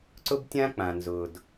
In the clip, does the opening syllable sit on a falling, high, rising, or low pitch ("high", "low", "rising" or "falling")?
high